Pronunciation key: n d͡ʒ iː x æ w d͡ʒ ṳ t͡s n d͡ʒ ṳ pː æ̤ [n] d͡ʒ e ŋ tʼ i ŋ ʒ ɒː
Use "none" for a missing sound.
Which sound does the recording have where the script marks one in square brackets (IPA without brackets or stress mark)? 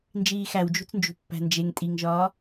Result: n